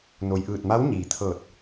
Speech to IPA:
n o˩ j ʔ ɯː˧˩ t̚ m a˧˥ w ɲ iː˩ t̪ʰ ɤː˧˩ t̚

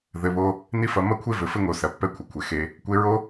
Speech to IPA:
ð ɘ˩˧ β o˧ | n i˥ f ɐ˧ m ɐ˥ kʷʰ e˥ v ɘ˩˧ f ɘ˥ ŋ o˩˧ s ɐ˩˧ pː ɛ˧˥ kʷʰ ɐ˩˧ kʷʰ e˩ x e˧˥ | kʷ e˧˥ ɹ o˥

